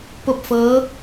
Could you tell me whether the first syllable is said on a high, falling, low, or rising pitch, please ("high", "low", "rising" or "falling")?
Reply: falling